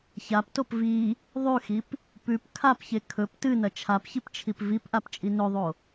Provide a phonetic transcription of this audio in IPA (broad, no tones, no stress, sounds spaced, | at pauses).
ç a p t o p v i | ðˤ ʉ x i p | p ʉ p kʰ a p ç e kʰ ɵ p t ɨ n ɐ t͡ʃʰ a p ç i p t͡ʃʰ i p v i p ʔ a p t͡ʃʼ i n ɵ ðˤ o